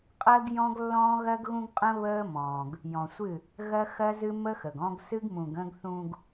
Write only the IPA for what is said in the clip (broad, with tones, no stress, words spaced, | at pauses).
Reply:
qʼɜ˦ɡjɔ̃˦ɡlːɔ̃ː˦ ɣɜ˦ɡɣũ˦ɡqʼə̃˦ βəː˦ mɔ̃ː˨ɡ | jɔ̃˨sʷɨ˦˨ | ɣɜ˦xɜ˦zɨ˦ mə˦xə˨ɡɔ̃˦ɡ sɨ˦ɡmũ˨ɡ ə̃˦ɡ θũ˨ɡ